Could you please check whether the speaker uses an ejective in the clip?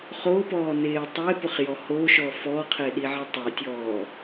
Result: no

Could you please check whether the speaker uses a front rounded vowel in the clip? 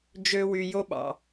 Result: yes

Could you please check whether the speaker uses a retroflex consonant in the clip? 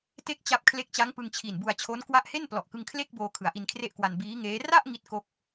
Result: no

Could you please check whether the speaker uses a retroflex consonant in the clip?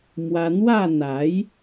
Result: no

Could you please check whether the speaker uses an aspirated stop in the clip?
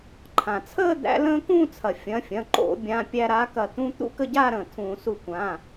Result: yes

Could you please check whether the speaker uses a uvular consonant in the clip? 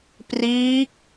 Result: no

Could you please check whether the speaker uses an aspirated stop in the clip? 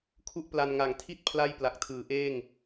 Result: yes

